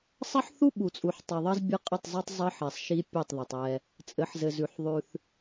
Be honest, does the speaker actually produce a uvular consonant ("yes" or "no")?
yes